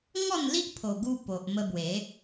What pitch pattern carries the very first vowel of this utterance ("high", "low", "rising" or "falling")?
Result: falling